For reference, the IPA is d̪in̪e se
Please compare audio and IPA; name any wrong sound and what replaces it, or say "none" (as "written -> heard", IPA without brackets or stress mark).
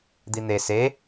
none